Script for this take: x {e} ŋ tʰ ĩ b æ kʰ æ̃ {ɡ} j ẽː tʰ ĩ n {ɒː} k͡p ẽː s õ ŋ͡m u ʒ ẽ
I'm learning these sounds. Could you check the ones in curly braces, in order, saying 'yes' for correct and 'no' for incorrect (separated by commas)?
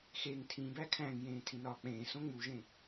yes, no, yes